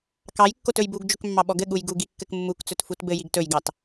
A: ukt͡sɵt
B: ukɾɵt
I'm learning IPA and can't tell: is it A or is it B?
A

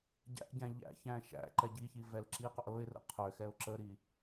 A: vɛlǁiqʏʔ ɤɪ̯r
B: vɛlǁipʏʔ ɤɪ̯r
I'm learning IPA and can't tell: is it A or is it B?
A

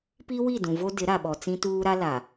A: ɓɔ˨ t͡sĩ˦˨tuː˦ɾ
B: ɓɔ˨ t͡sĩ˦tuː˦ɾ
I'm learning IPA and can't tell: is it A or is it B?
B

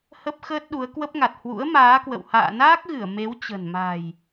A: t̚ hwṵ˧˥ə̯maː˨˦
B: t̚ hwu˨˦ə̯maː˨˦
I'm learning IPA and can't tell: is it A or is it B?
A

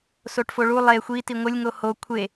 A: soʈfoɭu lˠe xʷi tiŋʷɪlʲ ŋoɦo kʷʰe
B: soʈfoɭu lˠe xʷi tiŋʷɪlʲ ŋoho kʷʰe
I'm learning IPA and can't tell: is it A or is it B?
B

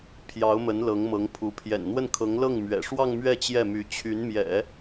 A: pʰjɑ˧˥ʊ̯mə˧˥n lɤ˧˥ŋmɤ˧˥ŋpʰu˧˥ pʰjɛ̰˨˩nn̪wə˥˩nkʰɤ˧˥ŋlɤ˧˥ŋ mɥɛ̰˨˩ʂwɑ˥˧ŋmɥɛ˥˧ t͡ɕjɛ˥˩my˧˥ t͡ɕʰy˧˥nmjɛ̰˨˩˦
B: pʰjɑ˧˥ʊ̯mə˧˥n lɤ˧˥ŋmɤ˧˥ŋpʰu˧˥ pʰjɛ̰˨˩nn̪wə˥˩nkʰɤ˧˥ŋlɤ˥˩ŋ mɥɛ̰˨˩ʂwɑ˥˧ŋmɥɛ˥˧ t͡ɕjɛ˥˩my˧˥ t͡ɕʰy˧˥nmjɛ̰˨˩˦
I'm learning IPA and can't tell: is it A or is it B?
B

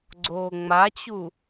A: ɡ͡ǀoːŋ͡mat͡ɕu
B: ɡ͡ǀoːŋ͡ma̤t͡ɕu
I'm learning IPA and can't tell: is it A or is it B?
A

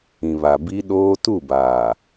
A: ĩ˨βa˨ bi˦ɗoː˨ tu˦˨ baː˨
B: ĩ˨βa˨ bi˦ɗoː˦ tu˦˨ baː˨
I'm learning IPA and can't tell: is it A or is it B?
B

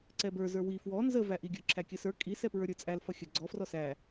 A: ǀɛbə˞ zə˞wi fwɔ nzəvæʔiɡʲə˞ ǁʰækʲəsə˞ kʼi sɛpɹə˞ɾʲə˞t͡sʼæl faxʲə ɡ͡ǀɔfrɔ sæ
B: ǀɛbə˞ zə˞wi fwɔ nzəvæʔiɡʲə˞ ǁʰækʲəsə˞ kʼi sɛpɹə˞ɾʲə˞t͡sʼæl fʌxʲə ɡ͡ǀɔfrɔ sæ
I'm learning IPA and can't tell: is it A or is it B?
B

